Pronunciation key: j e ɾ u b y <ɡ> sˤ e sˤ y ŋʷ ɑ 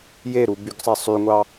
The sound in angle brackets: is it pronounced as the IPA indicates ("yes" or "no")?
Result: yes